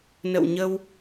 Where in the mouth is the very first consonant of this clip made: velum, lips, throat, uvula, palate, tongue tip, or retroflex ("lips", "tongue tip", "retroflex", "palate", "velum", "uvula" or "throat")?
tongue tip